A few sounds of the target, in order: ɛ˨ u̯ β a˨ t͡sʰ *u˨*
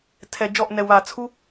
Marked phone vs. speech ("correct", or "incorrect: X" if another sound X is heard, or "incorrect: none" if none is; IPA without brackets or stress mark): incorrect: u˦